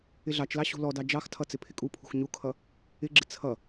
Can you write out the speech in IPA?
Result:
ɪɮɑt͡ʃlɑ ɕṳlɔdɑ d͡ʒɑxtʰʌ t͡sɪpʰɪkʼupʰṳx ɲukʰʌ | ɪɡ͡ǁɪ t͡sʰʌ

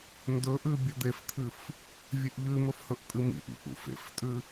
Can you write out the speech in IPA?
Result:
ndɵʔʉ bʲɵd̪eft̪ʰɨf | vʲʉʔʎʉmɵf hɵʔtʼɨmḭʔḭ ʔṵfḛftʼʉ

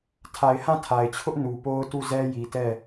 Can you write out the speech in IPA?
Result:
tʰa˨ɪ̯hã˦˨tʰa˨ɪ̯t͡ɕʰʊ˦ʔ nu˨po˦ʊ̯ tu˦˨zɛ˦ ji˨tɛ˦˨

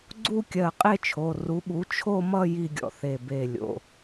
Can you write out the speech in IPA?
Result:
ɡ͡ǀu˥˧kʲɜ˧˩ qʼe˥˧t͡ʃʰo˩˧˩ ru˩˥ɓu˩˥ t͡ʃʰo˥˧mʌ˥˧ ji˥˧ɡʲɔ̰˧˩θe˧˩be˧˩ lʲo̰˩˧˩

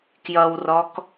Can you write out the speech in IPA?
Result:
kjʌwrɔk

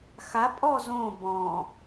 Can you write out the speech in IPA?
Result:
xapʼɔ zõ bɔ̃

